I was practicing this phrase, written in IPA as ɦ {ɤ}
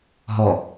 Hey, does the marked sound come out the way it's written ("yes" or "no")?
no